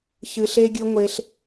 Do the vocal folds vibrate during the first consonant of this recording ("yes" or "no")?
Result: no